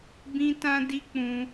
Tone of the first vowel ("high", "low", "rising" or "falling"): high